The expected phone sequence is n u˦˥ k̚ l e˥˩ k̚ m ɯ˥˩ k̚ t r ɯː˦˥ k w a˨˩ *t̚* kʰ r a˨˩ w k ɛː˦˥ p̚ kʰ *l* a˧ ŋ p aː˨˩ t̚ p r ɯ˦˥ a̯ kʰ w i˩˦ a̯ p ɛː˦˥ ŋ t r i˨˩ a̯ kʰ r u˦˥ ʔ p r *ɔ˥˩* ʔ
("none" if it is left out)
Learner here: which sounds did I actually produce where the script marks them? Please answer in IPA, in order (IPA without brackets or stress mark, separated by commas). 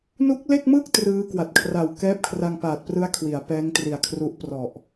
t̚, r, ɔ˨˩